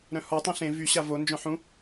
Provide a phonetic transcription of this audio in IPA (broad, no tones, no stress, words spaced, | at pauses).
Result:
ɾœ̃hɔ tˤĩɬẽ vy ɕavo nd͡ʒœ̃ħũ